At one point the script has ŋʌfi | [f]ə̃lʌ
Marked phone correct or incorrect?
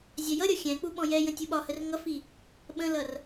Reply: incorrect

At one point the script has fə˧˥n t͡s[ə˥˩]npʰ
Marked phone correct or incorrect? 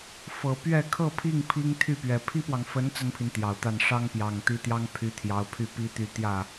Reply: incorrect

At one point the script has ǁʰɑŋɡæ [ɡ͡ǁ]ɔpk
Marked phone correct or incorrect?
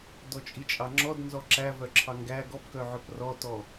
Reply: incorrect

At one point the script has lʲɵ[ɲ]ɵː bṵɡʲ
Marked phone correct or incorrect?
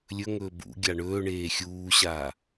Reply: incorrect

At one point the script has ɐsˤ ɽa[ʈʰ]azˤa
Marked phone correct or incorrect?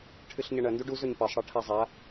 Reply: correct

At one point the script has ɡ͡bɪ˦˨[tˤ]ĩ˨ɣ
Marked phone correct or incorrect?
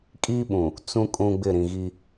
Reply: incorrect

